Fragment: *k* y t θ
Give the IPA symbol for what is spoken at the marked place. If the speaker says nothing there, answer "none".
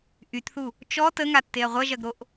ʔ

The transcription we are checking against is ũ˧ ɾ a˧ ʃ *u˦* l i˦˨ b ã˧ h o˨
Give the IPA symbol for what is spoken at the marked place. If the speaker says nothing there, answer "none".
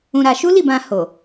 u˦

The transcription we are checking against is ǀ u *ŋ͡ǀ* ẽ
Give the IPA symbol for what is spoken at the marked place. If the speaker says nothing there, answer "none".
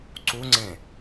ŋ͡ǀ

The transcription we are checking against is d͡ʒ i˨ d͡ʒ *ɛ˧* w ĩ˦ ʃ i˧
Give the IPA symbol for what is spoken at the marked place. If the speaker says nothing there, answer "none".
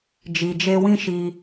e˧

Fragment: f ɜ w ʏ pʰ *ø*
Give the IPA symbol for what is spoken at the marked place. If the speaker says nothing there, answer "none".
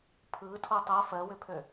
ø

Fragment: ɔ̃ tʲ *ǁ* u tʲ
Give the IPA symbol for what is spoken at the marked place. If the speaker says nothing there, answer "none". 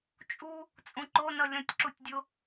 ǁ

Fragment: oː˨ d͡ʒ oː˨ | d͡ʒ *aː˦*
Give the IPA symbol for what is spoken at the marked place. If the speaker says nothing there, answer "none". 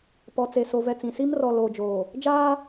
aː˦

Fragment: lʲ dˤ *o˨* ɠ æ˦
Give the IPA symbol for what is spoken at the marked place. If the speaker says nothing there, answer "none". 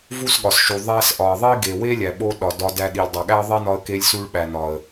o˨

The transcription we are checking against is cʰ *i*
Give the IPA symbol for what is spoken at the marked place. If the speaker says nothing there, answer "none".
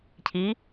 i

